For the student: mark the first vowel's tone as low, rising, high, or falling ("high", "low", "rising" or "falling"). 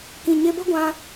low